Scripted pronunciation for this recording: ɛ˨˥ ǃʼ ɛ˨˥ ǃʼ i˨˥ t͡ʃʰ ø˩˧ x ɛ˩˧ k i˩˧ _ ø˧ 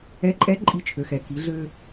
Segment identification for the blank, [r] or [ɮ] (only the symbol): ɮ